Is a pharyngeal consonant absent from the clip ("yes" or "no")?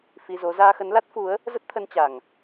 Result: yes